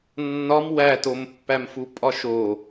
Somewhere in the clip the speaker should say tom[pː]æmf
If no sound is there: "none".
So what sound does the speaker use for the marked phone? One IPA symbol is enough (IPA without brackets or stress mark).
pː